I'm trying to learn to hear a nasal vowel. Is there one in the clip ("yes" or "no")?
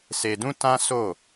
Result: yes